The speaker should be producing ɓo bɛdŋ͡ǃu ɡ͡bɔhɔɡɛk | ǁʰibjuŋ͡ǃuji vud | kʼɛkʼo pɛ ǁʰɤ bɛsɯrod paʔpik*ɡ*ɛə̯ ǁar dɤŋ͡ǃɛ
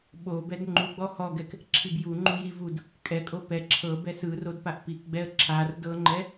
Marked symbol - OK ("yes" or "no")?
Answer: no